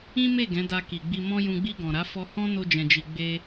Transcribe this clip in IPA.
ĩ˦ m e˦˨ ɡ ɛ̃˨˦ d a˧ k i˨ ɡ͡b i˧ m ɔ̃˦ j ũ˧ ɡ͡b i˧ ɡ ɔ̃˨ ɾ a˨˦ f ɔ˧ h ɔ̃˦ n o˦ d͡ʒ ɛ̃˧ d͡ʒ i˧ ɡ͡b e˦

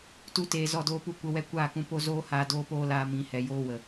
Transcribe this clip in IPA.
t u˧ t eː˨ z ɔ˦˨ d oː˦ p u˦ kʷ ə˧ w ɛ˦ kʷ aː˦˨ k ũ˧ p o˦ z oː˦ h aː˧ d oː˦ p oː˦ l aː˧ m ĩ˨˦ h ɛ˨ j oː˦ w ə˨

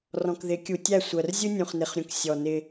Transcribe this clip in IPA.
r ɔ̃˨ k ð ɪ˨˦ kʲ u˨ tʲ æ˦˨ sʷ ɜ˨ r zʲ u˦ nʲ ũ˨ χ n ɪ˨ χ ɾʲ ũ˨ k sʲ ɔ˨ n ɪ˦

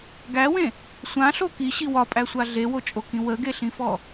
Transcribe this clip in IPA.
ɡ æ w ẽ | sʷ ã ɬ o k i ɕ i w ɒ pʼ æ sʷ a ɮ e w o t͡ʃʼ o k ĩ w ə ɡ e ɬ ĩ f ɔ

